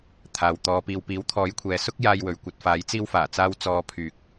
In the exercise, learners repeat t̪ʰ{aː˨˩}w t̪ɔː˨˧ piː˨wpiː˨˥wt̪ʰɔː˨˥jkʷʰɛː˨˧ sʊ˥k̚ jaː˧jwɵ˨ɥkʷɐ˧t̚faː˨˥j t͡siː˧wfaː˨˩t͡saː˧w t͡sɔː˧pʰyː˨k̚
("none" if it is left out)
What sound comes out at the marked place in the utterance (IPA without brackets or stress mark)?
aː˨